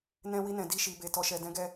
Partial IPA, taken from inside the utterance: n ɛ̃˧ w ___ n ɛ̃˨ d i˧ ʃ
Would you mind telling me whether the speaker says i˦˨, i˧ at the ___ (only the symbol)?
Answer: i˧